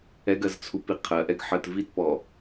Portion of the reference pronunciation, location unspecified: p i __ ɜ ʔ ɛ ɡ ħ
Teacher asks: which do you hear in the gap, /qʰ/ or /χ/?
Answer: qʰ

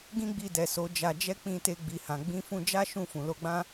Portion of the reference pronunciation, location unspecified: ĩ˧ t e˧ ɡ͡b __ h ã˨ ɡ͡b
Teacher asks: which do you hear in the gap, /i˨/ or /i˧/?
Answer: i˨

